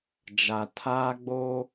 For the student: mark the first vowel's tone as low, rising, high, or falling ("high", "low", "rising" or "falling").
low